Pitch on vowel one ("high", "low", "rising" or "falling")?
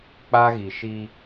high